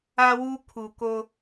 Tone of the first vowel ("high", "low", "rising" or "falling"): high